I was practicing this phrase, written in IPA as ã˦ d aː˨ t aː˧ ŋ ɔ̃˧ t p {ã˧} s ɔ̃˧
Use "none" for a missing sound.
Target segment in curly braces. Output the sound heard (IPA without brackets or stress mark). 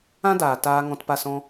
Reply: a˧